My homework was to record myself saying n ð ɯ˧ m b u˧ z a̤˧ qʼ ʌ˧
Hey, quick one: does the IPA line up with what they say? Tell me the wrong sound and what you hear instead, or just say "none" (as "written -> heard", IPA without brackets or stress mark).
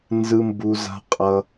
ð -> z